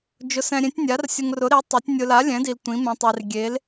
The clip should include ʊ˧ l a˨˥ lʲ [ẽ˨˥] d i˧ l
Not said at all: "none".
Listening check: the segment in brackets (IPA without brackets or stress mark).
ɛ̃˨˥